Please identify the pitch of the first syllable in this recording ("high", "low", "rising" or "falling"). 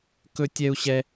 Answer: high